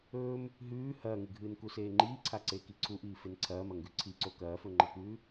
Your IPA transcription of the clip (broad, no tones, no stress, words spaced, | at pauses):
ɵːm | ɦʉː hɐːŋɨɡʱɨːn kuseːŋ͡ǃiːǀʰa ǀeːkiǀʰuʔiː fenǀʰɐːmɐ ŋɡʉǀʰiǀo kɐːfɵŋ͡ǃɐkʉː